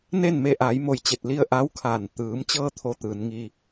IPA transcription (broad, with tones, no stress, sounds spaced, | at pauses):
n eː˥˨ n m e˧ ʔ aː˩˧ j m o˧˩ j t͡ɕ e˧˩ t̚ l i˧ ə̯ ʔ a˧˥ w kʰ aː˧˩ n t̪ ɯː˩˧ m t͡ɕ ɤː˧ t̪ʰ o˧˥ t̪ ɯː˩˧ n ŋ i˧